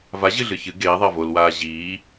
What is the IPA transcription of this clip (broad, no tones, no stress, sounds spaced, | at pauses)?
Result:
v a ʑ ɨ ɮ ɨ ç ɨ ɡ eː ðˤ a v o l w aː ʑ iː